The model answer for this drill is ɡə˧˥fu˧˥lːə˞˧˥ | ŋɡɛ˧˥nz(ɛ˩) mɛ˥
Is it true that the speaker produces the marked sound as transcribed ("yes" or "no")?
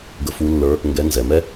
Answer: no